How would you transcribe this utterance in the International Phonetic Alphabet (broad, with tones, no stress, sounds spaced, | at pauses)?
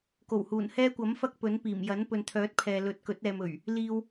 k o˨˩ w h uː˨˩ n h ɛː˥ kʷ ɐ˨˥ m f ɐ˥ k̚ p ɵ˨˥ n p iː˨˩ m j ɐ˨˥ n p ɵ˨ n t̪ʰ œː˨˥ t̚ pʰ ɛː˨ l ɵ˨˥ t̚ k ɵ˨˥ t̚ ɛː˨ m ɵ˨˩ ɥ | l iː˧ w